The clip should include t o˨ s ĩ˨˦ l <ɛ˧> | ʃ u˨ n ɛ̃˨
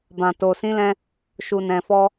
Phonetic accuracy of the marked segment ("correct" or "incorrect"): incorrect